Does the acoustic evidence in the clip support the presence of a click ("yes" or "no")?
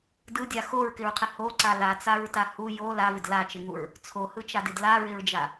yes